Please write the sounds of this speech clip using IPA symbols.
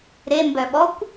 ɾ e m b œ ɓ ɔ kʷ

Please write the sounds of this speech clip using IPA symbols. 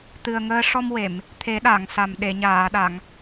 t̪ ɨ˨˩ ə̯ ŋ əː˧ ʂ ɔ˧ m w e˨˩˨ m | t̪ʰ e˨˩˦ ɗ a˨˩˨ ŋ s a˨˩ m ɗ e˨˩˨ ɲ aː˨˩˨ ɗ a˨˩˨ ŋ

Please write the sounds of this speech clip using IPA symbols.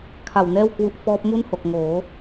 kʰ a˨˩ w n ɛː˥˩ w k w u˦˥ ʔ f ɔː˦˥ p̚ m u˥˩ n h o˨˩ k̚ ŋ oː˩˦

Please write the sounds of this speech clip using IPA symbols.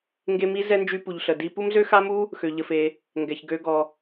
ŋ ɡ e˧ m i˧ z ɛ˥ n d͡ʒ y˥ p u˧ ʎ ɬ ə˧ d i˥ p u˥ m z ø˥ x a˥ m u˥ | x ø˧ ʎ ə˧ f e˧ | ŋ ɡ ɛ˧ ç ɡ ø˧ ɡ ɔ˧

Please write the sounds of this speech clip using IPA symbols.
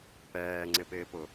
p ɛː ŋ͡ǀ ɪ p ɪː p ʊ

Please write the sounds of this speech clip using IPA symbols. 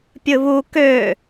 pʲ ɯ β u k ø

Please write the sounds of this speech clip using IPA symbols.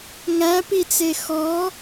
ŋ æ p i t͡s e x ɔ

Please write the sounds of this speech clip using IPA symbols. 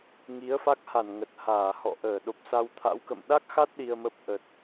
ŋ i˨˦ ə̯ f a˦˥ k̚ h a˧˩ n ŋ ə˨˩ t̚ h aː˧˩ h ɔ̰˧˨ ʔ əː˧˩ ɗ o˨˩ p̚ s a˧ w t̪ʰ a̰˧˥ w k ə̰˧˨ m ɗ a˦˥ k̚ x a˦˥ t̚ ɗ i˧ ə̯ m ə˦˥ p̚ ʔ ə˨˩ t̚

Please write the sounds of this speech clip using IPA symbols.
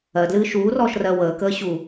ɜ d l ɨː ʃ uː r ɔː ʃ r ɜ w əː k əː ɕ u

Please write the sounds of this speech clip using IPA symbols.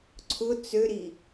ǀʰ ʊ t͡s ø ɾ i

